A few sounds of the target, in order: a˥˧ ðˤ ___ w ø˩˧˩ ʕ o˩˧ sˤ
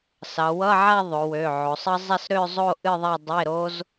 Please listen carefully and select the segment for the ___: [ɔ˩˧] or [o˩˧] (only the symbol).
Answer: o˩˧